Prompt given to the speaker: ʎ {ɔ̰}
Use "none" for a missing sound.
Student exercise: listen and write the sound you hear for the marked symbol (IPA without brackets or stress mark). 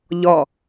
ɔ